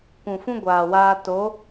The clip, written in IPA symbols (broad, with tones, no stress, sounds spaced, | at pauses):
kʷ ũ˨ f ũ˦ ɡʷ aː˨ w aː˧ t o˨˦